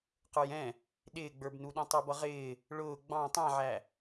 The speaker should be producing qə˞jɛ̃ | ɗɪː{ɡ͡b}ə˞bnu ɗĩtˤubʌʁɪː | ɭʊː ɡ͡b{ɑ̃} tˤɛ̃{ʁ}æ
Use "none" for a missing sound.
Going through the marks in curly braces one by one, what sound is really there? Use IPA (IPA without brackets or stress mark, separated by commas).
ɡ͡b, ɑ̃, ʕ